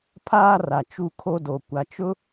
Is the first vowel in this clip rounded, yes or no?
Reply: no